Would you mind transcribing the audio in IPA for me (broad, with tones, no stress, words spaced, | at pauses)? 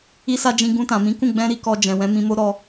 i˦sa˦d͡ʒĩ˧ ɡũ˧tã˨mĩ˨˦kũ˦˨ ɡ͡bɛ̃˧ɾi˧kɔ˨ d͡ʒɛ̃˨wɛ̃˨˦mĩ˧mo˦ ɾɔ˧